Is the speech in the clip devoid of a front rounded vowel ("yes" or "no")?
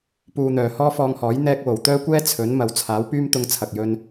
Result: no